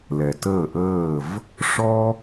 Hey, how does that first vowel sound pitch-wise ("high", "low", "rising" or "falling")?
low